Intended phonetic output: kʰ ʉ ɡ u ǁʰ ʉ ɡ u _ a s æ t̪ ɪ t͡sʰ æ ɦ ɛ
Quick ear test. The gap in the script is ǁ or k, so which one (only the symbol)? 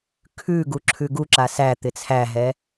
ǁ